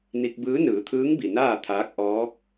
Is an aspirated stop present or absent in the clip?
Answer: present